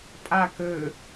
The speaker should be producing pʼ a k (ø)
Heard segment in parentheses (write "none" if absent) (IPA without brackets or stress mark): ø